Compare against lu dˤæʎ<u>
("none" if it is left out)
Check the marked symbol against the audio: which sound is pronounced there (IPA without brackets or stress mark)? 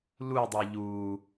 u